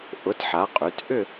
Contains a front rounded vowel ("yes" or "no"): yes